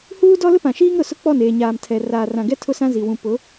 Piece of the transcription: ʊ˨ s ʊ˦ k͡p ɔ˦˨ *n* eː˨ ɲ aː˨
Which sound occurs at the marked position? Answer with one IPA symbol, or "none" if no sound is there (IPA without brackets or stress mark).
n